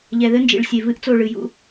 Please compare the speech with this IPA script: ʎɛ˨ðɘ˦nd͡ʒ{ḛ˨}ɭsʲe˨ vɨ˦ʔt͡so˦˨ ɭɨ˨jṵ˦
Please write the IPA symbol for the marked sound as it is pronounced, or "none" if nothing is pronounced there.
ḭ˨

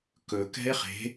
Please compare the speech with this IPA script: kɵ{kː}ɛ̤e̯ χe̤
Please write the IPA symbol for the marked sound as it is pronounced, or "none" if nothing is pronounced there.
k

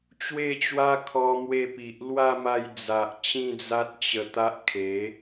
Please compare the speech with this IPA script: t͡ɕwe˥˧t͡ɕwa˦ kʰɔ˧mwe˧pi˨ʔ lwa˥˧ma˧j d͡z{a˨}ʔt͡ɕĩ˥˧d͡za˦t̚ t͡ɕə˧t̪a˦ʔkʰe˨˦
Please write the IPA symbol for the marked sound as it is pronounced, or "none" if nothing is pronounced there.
a˨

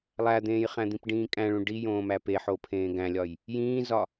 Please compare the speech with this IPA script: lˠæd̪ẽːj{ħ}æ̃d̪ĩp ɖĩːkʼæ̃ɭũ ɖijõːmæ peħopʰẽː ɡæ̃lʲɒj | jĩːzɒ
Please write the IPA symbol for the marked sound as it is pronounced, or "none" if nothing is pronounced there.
χ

